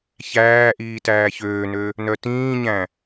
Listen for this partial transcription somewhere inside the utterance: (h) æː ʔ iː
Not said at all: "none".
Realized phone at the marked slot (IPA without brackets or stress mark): ç